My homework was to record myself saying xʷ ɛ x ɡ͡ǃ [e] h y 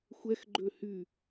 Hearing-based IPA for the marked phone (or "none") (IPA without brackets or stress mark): ø